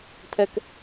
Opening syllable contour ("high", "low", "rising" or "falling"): low